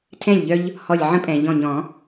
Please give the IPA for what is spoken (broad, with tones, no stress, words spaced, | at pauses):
tʰɛ̃˥˩lʲʎœ˦ʎ | hɔ˧˩lʲʕə̃˦pʼɛ̃˩ ʎɔ̃˧˩ɲɔ̃˨˩˦